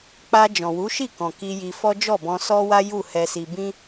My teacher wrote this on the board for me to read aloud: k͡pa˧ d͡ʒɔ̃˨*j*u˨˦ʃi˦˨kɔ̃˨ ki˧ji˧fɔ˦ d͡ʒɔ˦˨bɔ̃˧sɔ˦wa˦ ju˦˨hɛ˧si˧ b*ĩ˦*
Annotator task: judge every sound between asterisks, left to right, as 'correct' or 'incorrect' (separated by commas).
incorrect, correct